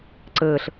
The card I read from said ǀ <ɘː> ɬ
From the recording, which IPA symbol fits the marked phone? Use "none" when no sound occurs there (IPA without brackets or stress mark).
ɘː